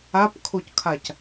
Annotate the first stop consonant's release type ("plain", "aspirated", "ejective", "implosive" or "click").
plain